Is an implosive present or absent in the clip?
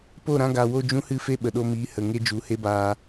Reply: present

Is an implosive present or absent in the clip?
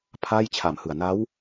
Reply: absent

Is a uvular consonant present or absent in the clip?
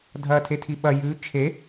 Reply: absent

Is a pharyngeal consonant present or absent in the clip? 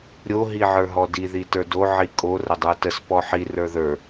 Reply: present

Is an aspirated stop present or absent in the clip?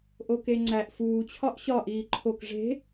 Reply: present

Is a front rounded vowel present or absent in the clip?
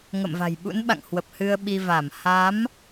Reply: absent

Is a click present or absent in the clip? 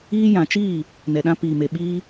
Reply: absent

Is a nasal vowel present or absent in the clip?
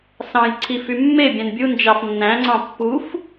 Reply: present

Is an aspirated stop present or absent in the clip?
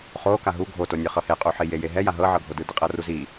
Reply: absent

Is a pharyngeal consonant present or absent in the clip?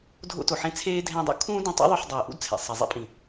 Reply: present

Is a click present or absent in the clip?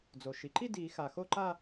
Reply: present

